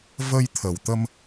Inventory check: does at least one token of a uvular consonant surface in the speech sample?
no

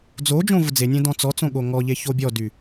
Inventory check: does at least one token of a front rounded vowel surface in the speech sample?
yes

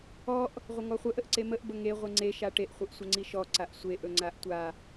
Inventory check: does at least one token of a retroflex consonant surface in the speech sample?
yes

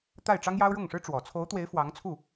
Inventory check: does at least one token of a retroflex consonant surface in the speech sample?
yes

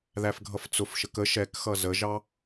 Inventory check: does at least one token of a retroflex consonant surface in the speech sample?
no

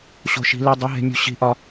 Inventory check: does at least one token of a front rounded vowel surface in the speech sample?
no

